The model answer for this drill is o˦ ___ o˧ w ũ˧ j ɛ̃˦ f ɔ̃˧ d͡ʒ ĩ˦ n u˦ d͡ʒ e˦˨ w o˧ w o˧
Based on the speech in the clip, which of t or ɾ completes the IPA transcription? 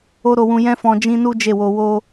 ɾ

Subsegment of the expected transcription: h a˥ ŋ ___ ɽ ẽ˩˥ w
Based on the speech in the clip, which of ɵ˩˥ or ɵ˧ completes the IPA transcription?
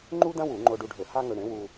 ɵ˧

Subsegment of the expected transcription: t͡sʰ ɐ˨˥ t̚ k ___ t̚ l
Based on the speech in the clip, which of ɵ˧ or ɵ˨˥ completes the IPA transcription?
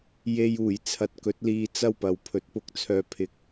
ɵ˨˥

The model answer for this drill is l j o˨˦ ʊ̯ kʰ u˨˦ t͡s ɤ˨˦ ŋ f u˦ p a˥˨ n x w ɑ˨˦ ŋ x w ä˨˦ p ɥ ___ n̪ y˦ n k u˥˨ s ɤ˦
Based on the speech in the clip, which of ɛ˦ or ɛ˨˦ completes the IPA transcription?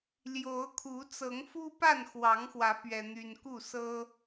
ɛ˦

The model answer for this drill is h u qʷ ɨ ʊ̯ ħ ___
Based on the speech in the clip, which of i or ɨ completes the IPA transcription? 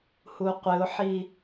i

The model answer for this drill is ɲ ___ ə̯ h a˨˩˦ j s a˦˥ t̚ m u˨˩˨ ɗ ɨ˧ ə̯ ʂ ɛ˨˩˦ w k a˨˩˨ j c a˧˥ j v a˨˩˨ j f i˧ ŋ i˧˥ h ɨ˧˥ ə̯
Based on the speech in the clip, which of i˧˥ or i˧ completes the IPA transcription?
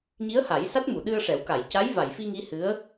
i˧˥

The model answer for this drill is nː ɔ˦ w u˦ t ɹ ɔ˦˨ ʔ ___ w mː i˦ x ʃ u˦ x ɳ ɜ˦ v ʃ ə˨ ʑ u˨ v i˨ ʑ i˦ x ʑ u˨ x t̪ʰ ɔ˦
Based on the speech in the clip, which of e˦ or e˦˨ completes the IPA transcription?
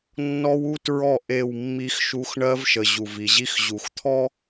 e˦˨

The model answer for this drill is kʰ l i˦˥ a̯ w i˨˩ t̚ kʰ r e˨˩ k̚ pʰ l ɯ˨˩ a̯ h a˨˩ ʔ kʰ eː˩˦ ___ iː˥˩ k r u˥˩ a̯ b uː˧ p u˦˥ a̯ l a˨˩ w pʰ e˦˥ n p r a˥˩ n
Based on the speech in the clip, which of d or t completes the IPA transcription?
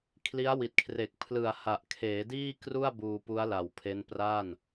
d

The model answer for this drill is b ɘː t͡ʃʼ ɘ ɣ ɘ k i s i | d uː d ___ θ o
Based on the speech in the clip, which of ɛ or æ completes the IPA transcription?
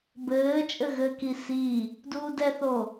ɛ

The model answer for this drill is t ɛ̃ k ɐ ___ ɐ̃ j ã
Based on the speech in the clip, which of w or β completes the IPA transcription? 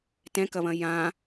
β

